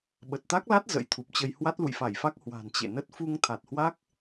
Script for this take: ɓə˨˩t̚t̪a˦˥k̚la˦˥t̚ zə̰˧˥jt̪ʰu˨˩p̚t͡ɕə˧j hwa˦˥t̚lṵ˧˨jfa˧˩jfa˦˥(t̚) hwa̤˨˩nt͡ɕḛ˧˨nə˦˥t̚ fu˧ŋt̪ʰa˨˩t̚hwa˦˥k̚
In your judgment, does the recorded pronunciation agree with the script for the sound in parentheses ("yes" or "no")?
no